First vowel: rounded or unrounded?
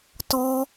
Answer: rounded